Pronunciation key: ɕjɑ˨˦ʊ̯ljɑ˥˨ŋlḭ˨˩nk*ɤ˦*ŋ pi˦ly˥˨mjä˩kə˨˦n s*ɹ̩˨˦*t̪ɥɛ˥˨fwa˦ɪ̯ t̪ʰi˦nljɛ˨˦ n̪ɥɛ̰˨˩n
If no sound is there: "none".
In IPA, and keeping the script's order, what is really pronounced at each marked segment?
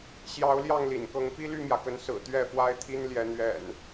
ɤ˨˦, ɹ̩˨˩

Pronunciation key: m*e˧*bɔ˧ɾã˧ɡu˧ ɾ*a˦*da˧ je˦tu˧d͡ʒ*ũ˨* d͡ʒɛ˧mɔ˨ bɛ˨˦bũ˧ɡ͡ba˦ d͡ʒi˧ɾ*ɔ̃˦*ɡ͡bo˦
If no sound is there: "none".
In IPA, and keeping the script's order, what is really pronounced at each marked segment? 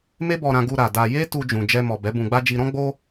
e˦, a˨, ũ˨, ɔ̃˦

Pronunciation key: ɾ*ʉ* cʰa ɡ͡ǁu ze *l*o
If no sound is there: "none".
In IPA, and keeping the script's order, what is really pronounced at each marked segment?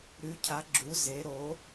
ʉ, ɾ

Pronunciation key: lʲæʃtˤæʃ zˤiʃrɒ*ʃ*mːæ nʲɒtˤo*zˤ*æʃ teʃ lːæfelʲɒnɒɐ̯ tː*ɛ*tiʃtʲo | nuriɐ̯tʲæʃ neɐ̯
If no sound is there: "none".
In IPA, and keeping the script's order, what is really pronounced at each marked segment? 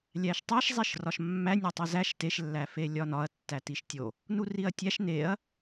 ʃ, z, æ

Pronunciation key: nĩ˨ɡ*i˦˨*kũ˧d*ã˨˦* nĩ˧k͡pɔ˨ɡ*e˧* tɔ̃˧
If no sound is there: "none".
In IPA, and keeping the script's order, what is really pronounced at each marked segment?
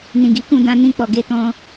i˨˦, ã˧, e˧

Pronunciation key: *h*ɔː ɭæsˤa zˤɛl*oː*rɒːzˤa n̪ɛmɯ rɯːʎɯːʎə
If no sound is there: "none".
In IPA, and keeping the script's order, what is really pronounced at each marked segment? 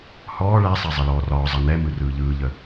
h, ɔː

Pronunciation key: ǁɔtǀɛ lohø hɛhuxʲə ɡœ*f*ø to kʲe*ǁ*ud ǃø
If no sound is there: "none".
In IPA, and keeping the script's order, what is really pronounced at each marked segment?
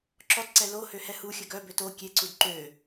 b, ǀ

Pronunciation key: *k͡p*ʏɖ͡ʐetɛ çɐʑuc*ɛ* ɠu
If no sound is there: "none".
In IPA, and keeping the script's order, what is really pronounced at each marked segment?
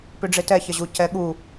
p, ɛ

